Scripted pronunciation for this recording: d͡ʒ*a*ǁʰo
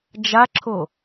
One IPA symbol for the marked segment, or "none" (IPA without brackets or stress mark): a